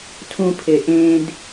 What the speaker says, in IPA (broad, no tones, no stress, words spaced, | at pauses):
tʰũpʰe ʔẽd